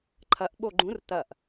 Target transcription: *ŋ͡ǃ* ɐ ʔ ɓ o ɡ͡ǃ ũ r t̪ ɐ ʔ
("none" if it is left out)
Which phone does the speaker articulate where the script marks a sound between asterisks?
ǃʰ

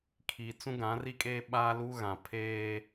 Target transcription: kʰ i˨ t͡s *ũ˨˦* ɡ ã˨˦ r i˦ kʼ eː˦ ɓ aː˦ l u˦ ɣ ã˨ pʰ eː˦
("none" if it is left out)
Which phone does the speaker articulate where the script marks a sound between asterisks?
ũ˦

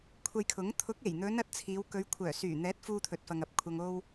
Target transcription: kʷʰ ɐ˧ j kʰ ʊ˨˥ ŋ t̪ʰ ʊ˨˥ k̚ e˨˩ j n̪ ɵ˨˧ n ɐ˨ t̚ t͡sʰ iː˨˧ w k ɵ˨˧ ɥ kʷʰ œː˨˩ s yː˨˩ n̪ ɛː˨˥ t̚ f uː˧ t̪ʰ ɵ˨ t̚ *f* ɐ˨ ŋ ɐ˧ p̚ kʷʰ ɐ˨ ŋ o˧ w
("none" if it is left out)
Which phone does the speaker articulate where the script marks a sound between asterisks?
f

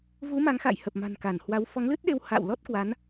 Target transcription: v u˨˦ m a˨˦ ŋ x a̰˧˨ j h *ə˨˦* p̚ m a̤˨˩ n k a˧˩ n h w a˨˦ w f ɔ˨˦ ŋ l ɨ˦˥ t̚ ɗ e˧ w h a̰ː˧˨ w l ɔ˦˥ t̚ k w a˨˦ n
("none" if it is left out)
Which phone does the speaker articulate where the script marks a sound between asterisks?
ə˨˩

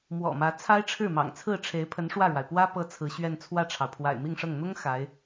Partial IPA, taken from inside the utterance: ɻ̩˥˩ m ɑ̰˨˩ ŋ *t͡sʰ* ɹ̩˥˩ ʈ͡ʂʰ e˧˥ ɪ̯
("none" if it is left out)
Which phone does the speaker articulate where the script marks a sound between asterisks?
t͡sʰ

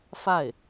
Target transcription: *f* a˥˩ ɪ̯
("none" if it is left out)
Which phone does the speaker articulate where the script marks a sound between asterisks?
f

